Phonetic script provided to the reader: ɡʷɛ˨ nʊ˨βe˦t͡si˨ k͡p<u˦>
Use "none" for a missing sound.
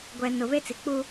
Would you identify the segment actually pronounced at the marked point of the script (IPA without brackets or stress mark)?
u˦